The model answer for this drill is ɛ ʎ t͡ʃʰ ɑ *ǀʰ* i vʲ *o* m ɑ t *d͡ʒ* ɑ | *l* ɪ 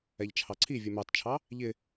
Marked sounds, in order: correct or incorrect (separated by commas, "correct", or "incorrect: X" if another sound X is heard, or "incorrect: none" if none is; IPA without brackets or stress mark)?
correct, incorrect: u, incorrect: t͡ʃʰ, incorrect: ʎ